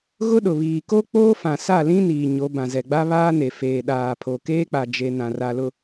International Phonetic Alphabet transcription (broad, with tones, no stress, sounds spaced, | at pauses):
ɣ ʊ˦ ɗ ʊ˨ β iː˨ k o˦ k͡p oː˦ f ã˨ s a˦˨ l ĩ˦ n iː˨ ɲ o˨˦ b ã˨ z ɛ˨ ɡ͡b a˦ β aː˦ n e˨ f eː˨ ɗ aː˨ pʰ o˨ k eː˦ k͡p a˨ d͡ʒ e˨ n ã˨ r a˨ l ʊ˨